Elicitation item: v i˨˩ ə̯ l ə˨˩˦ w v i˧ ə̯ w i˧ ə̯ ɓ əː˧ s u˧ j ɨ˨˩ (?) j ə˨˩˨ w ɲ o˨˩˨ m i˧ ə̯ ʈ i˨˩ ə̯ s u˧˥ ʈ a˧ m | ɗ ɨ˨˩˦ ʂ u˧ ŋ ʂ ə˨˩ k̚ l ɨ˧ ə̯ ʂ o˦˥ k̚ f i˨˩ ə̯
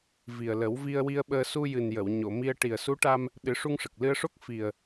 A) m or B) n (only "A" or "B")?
B